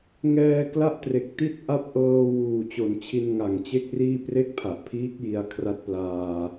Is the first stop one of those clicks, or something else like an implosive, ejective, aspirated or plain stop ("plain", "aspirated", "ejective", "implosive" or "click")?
plain